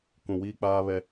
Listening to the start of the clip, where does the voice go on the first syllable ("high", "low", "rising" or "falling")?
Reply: low